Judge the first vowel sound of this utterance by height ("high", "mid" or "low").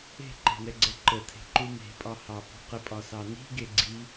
mid